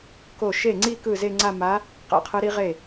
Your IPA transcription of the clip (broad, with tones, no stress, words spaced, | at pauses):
ko˥˩ ʃe˥˩ŋ͡ǀi˥˧ kɯ˥˩ze˥˧ŋ͡ǀa˥˧ ma˧˥ | qɛ̰˥˩qʰɯ˧˥ɾi˧˥ ʁe˥˩